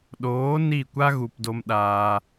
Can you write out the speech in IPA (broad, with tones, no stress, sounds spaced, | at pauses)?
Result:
ɗ oː˨˦ n i˦˨ kʷ a˦ ɣ u˨ p d o˧ m ɗ aː˧